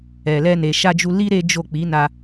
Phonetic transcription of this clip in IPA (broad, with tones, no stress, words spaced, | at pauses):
ɛ˨ lɛ˧ne˨ ʃa˧d͡ʒu˧li˦ ɾe˦d͡ʒo˦˨ k͡pi˨˦na˧